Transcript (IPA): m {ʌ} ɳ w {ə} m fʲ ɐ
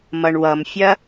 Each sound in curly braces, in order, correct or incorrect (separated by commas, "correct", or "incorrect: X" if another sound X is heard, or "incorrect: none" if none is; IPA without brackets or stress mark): correct, incorrect: ʌ